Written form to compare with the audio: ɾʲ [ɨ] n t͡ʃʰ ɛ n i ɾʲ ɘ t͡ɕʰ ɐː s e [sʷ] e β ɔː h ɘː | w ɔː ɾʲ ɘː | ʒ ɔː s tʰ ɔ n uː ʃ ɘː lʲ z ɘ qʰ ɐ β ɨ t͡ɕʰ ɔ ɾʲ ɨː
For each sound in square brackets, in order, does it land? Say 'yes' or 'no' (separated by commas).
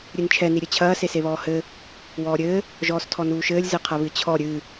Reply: yes, no